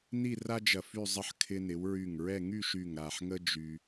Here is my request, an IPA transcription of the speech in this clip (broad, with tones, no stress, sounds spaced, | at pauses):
n i˥˧ r a˥ d͡ʒ ɐ˧˩ f y˥˧ zˤ ə˥˧ ħ kʰ ɪ˧ n ɪ˩˧ w ɹ y˧˩ ŋ ɹ ɛ˥˧ ŋ y˥˧ ʃ y˧˩ ŋ ɾ a˧˩ ħ ŋ ə˥ d͡ʒ y˧